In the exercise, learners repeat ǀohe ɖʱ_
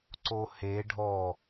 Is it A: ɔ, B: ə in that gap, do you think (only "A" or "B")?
A